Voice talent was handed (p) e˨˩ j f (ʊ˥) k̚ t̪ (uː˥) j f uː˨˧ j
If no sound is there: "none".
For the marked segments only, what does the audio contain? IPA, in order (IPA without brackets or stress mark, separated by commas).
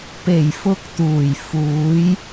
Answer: p, ʊ˧, uː˨˩